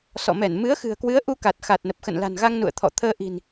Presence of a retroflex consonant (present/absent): absent